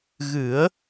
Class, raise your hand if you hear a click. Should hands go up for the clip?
no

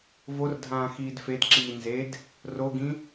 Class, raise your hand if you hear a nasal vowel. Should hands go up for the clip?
yes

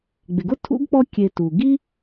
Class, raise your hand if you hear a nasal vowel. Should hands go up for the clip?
no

